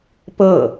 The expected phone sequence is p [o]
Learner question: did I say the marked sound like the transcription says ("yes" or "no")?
no